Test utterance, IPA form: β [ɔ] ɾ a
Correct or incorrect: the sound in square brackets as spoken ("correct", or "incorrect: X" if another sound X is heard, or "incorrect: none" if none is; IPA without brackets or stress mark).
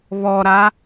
correct